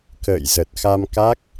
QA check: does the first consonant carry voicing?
no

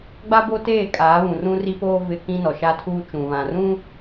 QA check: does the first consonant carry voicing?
yes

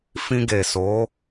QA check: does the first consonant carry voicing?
no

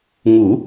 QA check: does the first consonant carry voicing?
yes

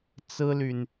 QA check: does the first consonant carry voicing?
no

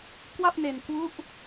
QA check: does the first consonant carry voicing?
no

